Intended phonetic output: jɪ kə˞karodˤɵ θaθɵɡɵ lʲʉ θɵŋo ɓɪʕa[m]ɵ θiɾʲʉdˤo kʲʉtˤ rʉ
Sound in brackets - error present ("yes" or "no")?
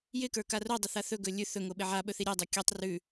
yes